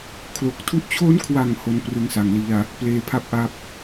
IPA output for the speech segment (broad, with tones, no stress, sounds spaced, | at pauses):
kʰ l o˨˩ k̚ tʰ u˥˩ ʔ t͡ɕʰ o˦˥ n kʰ w a˨˩ ŋ h o˧ n p r ɯ˧ ŋ s a˨˩ ŋ l i˧ a̯ | p l eː˧ pʰ a˥˩ p̚ ʔ a˦˥ p̚